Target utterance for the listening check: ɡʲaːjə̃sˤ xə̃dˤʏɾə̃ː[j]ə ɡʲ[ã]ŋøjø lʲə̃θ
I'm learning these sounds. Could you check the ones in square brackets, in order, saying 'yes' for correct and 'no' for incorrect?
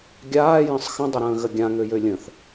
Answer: no, yes

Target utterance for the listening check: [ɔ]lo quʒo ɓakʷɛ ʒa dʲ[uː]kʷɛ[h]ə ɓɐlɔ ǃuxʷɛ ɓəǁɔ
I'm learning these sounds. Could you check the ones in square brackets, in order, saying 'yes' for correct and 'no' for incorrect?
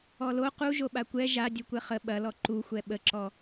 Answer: yes, no, no

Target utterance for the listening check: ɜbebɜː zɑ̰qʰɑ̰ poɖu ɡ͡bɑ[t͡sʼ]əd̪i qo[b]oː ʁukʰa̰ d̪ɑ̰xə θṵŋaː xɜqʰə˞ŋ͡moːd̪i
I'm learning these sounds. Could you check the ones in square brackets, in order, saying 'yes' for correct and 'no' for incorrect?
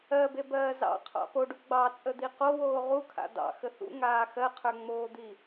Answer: yes, no

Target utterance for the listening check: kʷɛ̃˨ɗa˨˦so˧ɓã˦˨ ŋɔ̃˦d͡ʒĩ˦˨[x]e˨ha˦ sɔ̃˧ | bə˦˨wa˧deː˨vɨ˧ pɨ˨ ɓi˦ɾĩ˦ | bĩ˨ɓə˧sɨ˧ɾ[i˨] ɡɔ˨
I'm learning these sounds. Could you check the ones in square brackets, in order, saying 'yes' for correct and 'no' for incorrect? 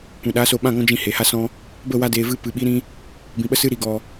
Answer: no, yes

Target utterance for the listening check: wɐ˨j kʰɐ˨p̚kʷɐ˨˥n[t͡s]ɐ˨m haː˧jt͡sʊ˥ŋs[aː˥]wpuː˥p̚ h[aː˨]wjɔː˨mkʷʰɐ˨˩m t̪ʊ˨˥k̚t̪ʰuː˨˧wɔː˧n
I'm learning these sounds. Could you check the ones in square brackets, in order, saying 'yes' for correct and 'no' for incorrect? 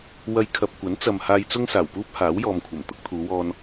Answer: yes, no, no

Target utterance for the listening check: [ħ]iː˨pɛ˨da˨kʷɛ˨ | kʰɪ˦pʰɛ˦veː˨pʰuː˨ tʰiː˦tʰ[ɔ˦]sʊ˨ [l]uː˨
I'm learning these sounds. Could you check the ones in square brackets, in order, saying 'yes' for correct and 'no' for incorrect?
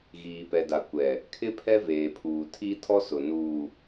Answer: no, yes, no

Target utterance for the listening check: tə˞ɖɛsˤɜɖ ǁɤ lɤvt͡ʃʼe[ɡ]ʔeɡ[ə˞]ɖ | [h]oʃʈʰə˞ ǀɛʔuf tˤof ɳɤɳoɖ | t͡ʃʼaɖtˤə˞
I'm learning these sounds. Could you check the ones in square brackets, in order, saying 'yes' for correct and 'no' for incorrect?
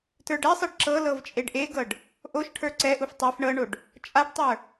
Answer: no, no, no

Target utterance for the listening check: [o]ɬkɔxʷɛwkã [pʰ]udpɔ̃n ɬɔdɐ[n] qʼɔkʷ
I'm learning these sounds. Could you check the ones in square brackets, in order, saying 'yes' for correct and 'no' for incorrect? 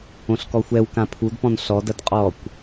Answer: no, yes, no

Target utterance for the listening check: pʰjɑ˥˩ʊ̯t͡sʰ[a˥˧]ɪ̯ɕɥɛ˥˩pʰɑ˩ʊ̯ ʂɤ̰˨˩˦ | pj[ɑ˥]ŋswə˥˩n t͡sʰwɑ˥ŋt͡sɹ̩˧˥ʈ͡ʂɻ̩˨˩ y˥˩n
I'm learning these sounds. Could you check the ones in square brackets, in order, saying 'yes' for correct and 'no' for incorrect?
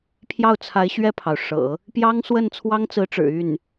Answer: no, yes

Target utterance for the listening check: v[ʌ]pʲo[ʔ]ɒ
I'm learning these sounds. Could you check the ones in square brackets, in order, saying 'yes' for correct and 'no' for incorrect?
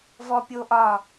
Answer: no, yes

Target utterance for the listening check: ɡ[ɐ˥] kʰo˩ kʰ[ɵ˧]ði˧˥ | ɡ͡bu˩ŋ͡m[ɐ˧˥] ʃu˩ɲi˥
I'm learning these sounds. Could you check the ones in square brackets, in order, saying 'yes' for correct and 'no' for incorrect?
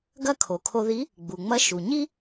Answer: yes, no, yes

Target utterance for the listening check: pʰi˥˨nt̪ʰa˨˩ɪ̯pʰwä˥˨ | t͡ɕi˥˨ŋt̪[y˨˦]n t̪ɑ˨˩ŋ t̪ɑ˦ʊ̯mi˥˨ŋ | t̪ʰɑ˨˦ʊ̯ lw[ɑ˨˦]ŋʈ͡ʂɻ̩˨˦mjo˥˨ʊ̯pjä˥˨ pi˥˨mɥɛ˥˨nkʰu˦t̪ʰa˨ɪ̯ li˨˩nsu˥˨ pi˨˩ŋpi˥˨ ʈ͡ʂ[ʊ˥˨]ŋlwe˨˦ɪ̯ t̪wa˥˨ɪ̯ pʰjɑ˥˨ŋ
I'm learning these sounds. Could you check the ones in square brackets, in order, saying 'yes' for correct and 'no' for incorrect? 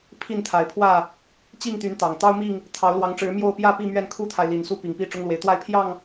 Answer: yes, yes, no

